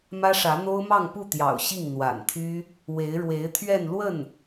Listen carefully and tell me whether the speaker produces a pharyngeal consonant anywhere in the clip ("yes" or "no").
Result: no